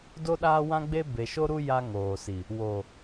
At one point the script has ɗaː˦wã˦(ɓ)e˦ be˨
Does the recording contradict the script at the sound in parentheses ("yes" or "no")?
yes